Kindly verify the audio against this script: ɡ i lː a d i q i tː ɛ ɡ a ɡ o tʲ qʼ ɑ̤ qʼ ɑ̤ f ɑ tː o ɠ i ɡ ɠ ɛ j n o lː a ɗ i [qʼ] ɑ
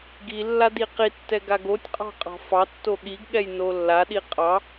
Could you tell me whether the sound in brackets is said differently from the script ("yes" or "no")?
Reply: no